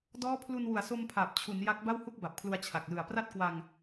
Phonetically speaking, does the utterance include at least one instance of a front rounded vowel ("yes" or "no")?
no